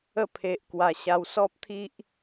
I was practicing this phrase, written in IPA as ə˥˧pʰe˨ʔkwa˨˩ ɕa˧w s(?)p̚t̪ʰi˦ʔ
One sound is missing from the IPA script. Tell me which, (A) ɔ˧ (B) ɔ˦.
B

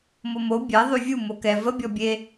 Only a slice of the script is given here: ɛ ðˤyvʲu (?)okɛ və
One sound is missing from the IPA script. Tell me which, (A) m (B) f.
A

